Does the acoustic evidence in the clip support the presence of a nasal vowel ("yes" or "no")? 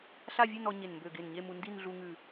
no